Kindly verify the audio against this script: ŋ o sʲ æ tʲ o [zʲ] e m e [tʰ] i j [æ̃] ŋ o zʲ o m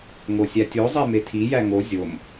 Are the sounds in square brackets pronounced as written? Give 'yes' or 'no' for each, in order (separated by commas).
no, yes, no